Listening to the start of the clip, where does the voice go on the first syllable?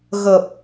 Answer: low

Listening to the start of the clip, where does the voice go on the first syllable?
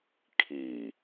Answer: low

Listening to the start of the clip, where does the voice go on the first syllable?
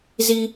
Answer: high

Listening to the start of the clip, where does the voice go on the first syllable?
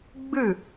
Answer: falling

